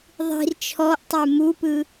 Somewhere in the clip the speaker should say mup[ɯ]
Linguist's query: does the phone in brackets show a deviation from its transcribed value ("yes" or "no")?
no